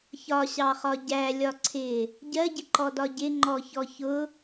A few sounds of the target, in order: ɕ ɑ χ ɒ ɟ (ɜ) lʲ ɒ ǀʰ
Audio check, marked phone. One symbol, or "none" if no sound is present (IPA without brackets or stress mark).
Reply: æ